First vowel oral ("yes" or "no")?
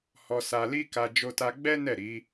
yes